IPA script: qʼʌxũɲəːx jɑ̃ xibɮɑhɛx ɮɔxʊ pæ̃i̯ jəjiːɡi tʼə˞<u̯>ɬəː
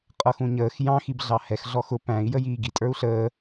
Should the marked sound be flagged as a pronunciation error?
no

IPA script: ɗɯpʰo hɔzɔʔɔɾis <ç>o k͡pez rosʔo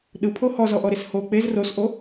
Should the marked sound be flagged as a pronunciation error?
yes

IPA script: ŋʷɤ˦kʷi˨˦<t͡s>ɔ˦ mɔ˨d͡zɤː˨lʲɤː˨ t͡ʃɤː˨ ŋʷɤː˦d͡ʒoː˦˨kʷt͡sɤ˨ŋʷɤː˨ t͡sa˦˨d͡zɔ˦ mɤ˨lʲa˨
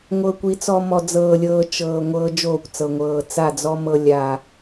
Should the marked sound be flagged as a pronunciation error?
no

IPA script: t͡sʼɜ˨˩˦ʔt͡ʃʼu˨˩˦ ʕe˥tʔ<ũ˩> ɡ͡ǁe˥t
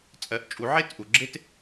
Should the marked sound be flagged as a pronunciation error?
yes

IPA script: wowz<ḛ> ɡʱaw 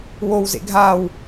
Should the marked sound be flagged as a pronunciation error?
no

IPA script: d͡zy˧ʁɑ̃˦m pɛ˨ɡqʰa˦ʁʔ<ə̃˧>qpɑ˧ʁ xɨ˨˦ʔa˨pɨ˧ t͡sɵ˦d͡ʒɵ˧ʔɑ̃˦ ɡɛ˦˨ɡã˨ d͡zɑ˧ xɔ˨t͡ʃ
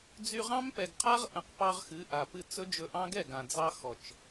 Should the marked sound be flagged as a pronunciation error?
yes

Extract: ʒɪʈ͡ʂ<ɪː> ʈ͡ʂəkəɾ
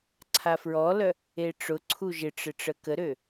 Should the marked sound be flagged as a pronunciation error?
yes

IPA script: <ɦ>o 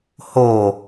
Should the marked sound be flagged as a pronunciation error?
yes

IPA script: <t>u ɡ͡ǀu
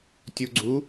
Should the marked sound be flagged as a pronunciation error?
yes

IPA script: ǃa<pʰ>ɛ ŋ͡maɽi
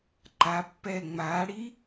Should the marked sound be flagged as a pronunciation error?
yes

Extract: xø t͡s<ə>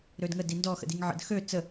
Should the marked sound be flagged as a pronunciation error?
no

